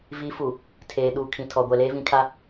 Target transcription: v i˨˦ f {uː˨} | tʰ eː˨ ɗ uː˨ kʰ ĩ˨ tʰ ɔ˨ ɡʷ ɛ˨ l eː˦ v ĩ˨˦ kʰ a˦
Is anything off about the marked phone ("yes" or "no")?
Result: yes